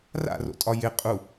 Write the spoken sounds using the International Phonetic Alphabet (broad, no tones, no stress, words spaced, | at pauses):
ra̰ro̰tʼɒ jɪ qʼu